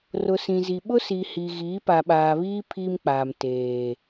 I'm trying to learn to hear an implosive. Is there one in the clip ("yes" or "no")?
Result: yes